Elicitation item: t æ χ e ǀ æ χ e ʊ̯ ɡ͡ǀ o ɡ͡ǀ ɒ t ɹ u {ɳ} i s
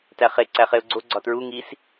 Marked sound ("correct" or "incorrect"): incorrect